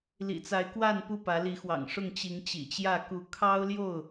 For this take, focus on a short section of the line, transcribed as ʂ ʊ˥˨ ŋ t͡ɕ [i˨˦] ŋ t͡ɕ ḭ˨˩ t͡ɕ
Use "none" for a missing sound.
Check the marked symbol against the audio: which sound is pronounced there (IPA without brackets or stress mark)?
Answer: i˨˦